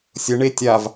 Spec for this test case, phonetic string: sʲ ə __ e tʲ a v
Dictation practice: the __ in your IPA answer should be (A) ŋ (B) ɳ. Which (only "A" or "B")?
B